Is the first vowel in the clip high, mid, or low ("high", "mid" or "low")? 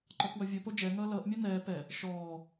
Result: mid